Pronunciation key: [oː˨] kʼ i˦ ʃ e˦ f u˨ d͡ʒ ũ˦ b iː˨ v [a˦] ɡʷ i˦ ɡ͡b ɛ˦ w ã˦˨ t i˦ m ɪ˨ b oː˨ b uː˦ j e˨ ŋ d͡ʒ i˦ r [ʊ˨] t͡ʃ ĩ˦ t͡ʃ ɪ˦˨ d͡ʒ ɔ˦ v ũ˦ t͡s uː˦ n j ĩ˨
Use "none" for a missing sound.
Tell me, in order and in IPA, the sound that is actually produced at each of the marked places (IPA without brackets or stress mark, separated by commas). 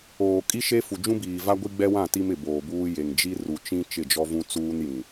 oː˨, a˦, u˨